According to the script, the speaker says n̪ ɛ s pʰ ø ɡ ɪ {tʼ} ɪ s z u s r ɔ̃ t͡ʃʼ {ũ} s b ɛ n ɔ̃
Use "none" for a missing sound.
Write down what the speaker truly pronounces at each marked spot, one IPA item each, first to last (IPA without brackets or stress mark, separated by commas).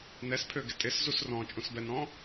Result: tʼ, ũ